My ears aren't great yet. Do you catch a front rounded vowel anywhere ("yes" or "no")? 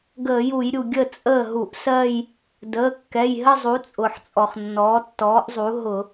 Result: no